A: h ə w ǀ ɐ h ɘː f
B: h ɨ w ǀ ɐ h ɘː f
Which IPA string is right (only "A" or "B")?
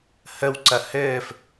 A